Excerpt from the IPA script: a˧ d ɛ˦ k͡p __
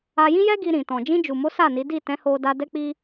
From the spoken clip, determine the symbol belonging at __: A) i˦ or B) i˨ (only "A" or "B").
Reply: A